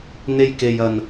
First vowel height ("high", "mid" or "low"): mid